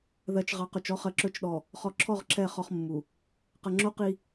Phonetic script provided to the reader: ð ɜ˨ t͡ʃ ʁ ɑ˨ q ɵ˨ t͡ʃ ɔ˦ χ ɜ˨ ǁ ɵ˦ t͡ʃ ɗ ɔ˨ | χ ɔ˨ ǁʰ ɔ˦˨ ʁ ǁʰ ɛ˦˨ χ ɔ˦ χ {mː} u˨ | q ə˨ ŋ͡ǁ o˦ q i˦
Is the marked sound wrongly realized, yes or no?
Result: no